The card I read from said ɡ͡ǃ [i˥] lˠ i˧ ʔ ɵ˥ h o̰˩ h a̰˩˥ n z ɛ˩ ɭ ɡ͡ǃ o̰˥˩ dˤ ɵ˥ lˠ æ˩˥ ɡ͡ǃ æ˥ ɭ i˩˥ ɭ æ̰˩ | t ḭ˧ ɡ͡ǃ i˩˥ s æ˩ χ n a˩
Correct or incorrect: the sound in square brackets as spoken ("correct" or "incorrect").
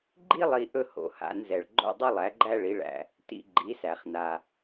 correct